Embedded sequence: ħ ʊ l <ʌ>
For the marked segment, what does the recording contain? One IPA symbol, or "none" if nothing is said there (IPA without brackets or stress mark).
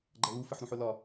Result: ɒ